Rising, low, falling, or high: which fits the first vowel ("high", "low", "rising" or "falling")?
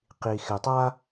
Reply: low